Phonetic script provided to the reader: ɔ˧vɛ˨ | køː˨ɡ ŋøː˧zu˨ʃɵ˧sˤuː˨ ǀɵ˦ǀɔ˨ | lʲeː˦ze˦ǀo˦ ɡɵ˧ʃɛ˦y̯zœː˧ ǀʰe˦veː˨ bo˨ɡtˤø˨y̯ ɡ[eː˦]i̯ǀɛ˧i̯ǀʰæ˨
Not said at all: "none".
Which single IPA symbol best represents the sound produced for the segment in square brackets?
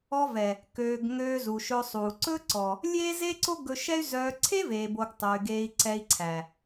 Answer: eː˧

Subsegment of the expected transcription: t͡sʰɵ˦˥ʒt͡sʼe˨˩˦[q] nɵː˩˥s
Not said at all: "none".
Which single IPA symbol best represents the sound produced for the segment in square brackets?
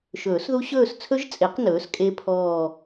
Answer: q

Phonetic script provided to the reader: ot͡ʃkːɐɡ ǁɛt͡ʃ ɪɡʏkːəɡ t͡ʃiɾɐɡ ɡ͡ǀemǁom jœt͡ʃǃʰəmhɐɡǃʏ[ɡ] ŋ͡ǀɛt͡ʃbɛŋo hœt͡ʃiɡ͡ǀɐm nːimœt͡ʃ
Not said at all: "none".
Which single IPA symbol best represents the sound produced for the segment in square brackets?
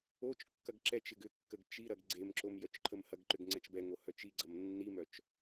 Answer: ɡ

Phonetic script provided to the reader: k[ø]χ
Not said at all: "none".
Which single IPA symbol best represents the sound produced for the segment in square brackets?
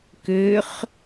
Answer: ø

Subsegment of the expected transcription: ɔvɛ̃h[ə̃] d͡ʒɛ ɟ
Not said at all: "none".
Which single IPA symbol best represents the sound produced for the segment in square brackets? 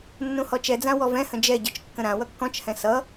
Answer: ə̃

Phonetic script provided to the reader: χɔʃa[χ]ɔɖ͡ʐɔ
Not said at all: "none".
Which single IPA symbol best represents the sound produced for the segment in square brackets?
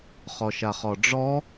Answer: χ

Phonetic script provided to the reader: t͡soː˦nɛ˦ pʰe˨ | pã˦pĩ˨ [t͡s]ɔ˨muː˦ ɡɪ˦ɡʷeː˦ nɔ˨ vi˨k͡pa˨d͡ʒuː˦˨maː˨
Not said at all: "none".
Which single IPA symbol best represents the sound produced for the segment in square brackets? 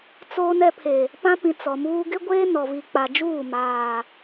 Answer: t͡s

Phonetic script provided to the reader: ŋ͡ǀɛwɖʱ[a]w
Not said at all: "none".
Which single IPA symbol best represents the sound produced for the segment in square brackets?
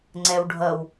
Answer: ʌ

